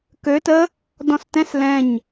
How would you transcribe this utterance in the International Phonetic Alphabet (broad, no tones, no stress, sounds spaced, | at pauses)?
k ø t ə | d ɔ̃ s t ɛ̃ s l ɛ̃ ɲ